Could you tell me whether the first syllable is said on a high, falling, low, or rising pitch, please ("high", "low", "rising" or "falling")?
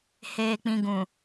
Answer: low